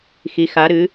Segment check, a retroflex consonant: absent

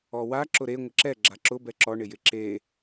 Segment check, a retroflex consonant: present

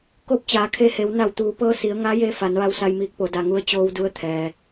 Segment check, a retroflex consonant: absent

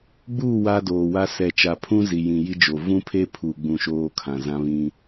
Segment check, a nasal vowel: present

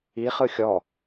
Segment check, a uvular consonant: present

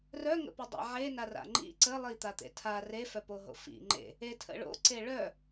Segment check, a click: present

